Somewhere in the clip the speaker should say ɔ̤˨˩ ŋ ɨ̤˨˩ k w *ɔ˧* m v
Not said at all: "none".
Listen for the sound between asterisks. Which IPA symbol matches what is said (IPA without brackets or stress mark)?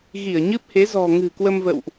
ə˧